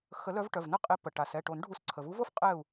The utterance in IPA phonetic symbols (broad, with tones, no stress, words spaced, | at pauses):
xə˨˩˦lœ˨˦vʈœ˩˧˩v nə˥˨qʼe˨˦pə˩ ʈa˩sɛ˩˧˩ʈo˨˩˦n ɖʱu˨˩˦sǀʰə˩vu˨˦vo˥˨f qʼɛ˥˨u̯